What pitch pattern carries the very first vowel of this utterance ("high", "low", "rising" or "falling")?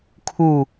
falling